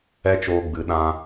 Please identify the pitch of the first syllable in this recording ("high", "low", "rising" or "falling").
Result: high